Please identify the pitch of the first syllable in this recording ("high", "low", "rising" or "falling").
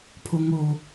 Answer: low